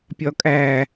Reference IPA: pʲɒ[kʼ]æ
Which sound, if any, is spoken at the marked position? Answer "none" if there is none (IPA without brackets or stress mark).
kʼ